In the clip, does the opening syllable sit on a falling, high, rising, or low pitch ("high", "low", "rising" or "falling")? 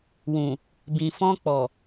low